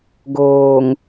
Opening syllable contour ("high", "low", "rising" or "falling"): low